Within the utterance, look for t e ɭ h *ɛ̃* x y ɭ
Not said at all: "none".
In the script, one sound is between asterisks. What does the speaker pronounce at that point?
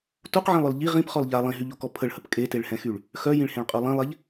ɛ̃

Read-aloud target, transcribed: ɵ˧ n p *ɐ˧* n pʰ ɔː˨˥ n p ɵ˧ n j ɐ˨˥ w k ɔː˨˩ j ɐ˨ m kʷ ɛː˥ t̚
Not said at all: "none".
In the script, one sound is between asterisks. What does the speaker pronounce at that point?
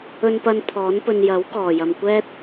ɐ˧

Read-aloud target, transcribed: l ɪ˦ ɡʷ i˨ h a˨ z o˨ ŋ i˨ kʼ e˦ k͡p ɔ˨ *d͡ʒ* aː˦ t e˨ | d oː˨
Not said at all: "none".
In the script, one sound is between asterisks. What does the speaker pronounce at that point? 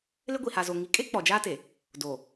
d͡ʒ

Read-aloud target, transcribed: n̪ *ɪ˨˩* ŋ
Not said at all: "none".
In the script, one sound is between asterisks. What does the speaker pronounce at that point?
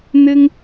ɪ˥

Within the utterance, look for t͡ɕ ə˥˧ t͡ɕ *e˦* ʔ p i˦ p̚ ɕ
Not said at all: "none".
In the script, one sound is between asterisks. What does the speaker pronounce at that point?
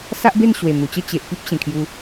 e˨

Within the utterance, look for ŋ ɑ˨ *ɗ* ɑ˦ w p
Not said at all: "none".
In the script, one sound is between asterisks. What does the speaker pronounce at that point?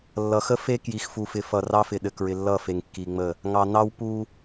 n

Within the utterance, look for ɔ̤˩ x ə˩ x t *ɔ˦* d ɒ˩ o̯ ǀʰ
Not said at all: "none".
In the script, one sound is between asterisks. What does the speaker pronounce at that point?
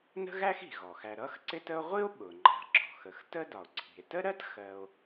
ə˦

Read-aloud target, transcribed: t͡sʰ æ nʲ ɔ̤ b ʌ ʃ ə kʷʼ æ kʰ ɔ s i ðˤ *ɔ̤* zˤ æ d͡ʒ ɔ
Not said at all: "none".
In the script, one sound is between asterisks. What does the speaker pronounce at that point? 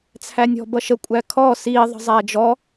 ə̤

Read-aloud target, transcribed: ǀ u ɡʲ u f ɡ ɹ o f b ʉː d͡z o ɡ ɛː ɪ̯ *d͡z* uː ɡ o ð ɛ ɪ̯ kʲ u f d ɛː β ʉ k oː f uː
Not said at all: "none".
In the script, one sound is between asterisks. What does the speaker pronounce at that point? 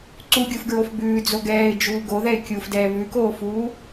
d͡ʒ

